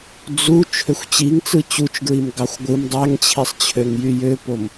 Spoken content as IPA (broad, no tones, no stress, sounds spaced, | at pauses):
d͡z u t͡ʃʰ ø xʷ t͡ɕ i ŋ t͡s ɯ t͡ɕ u t͡ʃ ɡ ɹ i m ɡ ɑ xʷ ɡʷ ɯ m dˤ æ ŋ t͡ɕʰ i sˤ t͡ɕʰ ø ŋ j y j ø p o m